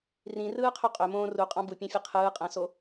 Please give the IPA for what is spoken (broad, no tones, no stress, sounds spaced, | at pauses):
r ĩ r ɯː qʰ ø qʼ ø m õː r u qʼ ɑ̃ b u pʲ ɑ̃ fʲ e qʰ ɯː qʼ æ̃ s o